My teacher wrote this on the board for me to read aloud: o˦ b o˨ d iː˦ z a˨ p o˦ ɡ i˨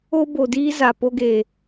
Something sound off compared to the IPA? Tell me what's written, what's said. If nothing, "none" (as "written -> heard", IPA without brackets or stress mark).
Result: i˨ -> e˨